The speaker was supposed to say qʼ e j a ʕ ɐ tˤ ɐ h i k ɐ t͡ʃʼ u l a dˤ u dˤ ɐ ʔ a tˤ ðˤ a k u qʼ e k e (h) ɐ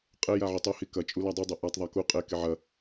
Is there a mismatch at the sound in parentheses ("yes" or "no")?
yes